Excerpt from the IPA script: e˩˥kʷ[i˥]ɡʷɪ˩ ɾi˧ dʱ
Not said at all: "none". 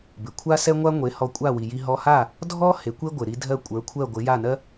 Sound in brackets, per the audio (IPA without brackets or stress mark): e˥